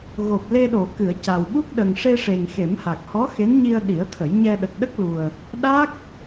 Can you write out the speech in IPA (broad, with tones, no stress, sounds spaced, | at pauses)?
ɣ o˨˩ p̚ l e˧ ɗ o˨˩˨ k ɨ˨˩˨ ə̯ c a˨˩ w ɓ u˦˥ k̚ ɗ ə˨˩ ŋ ʂ e˧ ʂ e˨˩ ŋ x e˨˩˦ m h a˨˩ k̚ h ɔ˧˥ x e˧˥ n ɲ i˧ ə̯ ɗ i˨˩˦ ə̯ t̪ʰ ə˨˩˦ j ɲ ɛ˧ ɗ ə˨˩ k̚ ɗ ə˦˥ k̚ l u˨˩ ə̯ | ɗ a˦˥ k̚